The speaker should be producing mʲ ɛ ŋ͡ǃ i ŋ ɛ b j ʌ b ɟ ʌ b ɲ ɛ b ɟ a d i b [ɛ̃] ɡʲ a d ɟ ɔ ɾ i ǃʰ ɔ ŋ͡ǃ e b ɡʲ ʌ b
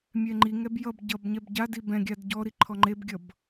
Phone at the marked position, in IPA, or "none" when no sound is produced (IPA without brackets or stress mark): ɛ̃